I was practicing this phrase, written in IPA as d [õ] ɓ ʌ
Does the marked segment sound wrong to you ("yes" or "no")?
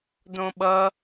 no